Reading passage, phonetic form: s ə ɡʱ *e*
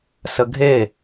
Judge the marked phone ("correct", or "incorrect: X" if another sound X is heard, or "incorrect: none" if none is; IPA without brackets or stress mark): correct